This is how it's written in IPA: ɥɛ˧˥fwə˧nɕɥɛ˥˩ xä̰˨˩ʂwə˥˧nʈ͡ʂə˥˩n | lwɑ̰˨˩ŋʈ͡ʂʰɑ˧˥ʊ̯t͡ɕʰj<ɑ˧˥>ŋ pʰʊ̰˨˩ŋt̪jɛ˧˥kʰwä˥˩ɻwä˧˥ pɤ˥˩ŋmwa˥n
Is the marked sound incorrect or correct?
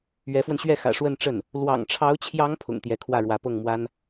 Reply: correct